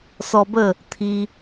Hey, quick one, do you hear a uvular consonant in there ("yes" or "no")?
no